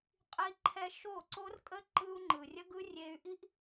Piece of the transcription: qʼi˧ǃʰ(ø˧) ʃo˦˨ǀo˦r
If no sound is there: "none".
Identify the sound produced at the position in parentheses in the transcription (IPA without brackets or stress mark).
ɛ˧